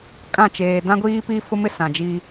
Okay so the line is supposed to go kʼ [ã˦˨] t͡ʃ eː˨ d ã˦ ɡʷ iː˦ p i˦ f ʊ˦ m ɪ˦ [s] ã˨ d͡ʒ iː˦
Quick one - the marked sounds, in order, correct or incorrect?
correct, correct

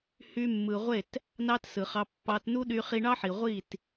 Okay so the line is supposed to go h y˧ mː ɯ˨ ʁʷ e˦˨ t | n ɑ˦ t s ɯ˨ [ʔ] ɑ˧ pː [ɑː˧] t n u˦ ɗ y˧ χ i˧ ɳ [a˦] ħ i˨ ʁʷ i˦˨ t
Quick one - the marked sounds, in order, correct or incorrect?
incorrect: χ, incorrect: ɑ˧, incorrect: ɑ˦

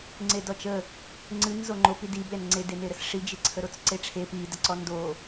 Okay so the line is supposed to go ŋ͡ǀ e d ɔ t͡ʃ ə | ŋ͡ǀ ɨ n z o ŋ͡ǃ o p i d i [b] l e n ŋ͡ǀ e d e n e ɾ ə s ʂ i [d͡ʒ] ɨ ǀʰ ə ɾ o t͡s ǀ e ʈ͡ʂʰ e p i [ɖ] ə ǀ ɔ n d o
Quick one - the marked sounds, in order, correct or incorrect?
correct, correct, incorrect: d

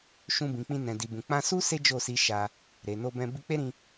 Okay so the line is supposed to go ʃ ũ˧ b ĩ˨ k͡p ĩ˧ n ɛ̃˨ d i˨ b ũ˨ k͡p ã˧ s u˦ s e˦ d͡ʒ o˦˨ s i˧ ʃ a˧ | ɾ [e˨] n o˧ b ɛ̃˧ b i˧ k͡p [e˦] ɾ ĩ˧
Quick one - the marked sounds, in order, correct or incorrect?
correct, correct

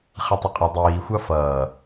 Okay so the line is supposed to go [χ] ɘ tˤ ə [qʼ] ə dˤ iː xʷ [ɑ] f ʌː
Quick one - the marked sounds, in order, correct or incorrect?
correct, correct, correct

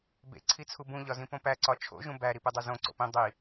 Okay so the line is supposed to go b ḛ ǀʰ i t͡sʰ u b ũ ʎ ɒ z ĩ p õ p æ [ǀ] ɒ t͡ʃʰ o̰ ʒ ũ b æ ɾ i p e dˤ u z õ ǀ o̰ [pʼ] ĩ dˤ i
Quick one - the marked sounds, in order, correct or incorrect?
correct, incorrect: p

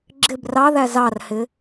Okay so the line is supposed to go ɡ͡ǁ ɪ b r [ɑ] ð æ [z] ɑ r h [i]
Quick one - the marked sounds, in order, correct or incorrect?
correct, correct, incorrect: ɪ

